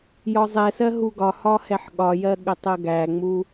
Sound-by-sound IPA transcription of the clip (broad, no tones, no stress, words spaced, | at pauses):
jɒzˤɛsɜ ɦuɡɒhɒ hɛħɠɒjɜ ɠətˤɜɡæŋ͡mu